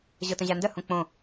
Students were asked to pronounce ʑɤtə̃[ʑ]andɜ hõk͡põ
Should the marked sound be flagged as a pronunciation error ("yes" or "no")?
no